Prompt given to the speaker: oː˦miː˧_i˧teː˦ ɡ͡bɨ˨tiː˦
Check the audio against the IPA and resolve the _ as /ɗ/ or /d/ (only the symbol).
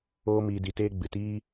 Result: d